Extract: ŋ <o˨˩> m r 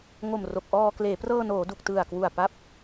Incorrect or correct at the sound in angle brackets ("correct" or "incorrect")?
correct